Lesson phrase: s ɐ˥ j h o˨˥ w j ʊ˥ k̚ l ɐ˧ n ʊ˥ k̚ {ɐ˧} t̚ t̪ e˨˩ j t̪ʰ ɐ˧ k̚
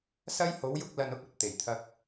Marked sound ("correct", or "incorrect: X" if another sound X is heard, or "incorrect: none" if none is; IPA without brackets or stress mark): incorrect: ɐ˨